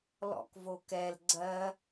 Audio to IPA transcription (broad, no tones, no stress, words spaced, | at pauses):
lɔ̰kvokɛl ɡ͡ǀɜ